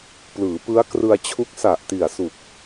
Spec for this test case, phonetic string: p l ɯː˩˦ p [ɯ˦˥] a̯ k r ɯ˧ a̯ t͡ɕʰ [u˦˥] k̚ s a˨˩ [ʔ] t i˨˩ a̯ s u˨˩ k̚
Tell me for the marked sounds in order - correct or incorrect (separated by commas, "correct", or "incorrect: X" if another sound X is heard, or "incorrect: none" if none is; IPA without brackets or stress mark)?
correct, correct, correct